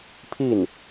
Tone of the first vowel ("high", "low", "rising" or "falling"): falling